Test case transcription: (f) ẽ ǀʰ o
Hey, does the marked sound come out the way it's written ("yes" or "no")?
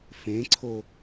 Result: yes